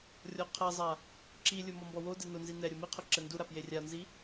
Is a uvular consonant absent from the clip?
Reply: no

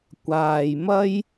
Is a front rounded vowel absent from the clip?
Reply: yes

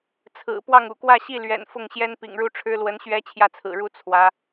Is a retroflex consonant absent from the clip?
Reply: no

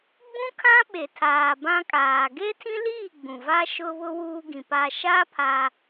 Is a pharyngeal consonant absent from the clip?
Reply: yes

